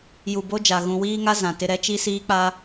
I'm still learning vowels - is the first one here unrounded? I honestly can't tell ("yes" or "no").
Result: no